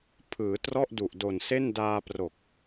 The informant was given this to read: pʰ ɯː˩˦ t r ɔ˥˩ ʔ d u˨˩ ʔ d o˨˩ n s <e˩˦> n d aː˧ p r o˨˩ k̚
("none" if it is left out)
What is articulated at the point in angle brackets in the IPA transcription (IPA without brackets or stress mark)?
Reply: e˥˩